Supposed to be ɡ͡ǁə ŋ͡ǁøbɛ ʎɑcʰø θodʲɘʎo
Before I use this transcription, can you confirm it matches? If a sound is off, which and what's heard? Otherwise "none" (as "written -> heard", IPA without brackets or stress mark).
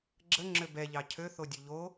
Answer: ɘ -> ø